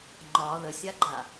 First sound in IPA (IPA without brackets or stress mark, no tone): ŋ͡ǃ